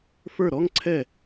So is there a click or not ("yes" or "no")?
yes